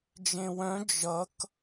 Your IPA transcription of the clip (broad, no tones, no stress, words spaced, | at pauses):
d͡ʒẽwœ̃ d͡ʒʌk